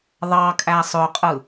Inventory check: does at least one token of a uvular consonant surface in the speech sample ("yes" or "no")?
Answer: yes